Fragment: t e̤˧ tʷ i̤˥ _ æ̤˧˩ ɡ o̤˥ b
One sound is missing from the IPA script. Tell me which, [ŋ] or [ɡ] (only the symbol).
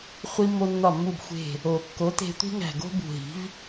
ŋ